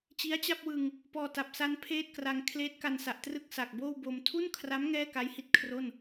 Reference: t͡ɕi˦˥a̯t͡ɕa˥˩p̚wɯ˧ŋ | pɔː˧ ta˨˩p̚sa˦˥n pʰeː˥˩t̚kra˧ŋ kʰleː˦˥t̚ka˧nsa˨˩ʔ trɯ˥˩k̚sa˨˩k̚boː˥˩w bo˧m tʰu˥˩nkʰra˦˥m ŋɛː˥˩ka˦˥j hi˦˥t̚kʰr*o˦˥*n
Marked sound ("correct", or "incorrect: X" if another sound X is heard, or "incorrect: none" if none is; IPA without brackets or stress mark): incorrect: o˥˩